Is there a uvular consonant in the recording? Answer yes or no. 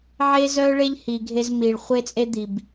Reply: yes